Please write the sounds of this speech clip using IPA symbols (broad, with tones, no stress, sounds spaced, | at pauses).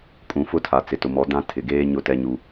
kʼ ũ˨ f ʊ˦ tʰ a˨ t͡s ɪ˨ t ʊ˨ m ɔ˨˦ d ã˦ tʰ ɪ˨ ɡ eː˦ ɲ ʊ˦ t ɛ˦ ɲ u˦